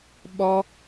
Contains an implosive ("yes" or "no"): yes